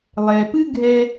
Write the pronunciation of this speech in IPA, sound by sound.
lˠ ɛ˩ p ɨ˥ ɡʱ ɛ˧

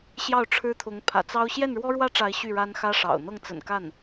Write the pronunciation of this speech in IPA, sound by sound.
ɕ j ɑ˥˩ ʊ̯ ʈ͡ʂʰ ɻ̩˥ t̪ʰ ʊ˧˥ ŋ pʰ ä̰˨˩ t͡s ɑ˥ ʊ̯ ɕ j ɛ˥˩ n ɻ w ɔ˥ ɻ w ä˥ ʈ͡ʂ a˧˥ ɪ̯ ɕ y˥˩ ɻ a˥ n x ä˥ ʂ ɑ̰˨˩ ʊ̯ n̪ ɤ˥˩ ŋ t͡s ə̰˨˩ n k a˥˩ n

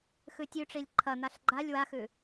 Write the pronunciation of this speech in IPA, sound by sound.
x ʉ tʲ ʉ ʈ͡ʂ i lʲ ǃʰ ɐ n̪ a ɬ ɡ͡ǃ a lʲ w a x ʉ

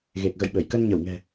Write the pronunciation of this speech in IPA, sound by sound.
ɣ e˨˩ k̚ ɣ ə̰˧˨ j ɓ ə˧˩ j k ə˧ n ɲ ə˧˩ w ŋ ɛ̤˨˩

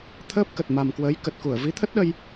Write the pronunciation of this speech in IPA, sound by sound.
t̪ʰ əː˦˥ p̚ k ə˨˩ t̚ m a˨˩ m k w əː˨˦ j k ə˨˩ t̚ k u˧˩ ə̯ v i˨˦ t̪ʰ ə˦˥ t̚ ɗ ə˧ j

